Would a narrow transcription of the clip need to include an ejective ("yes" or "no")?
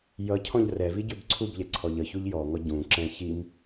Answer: no